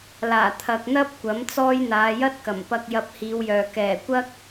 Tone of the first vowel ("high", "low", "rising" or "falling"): low